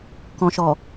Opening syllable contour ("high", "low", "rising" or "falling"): low